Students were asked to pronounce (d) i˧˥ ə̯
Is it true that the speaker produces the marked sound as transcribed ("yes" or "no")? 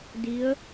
yes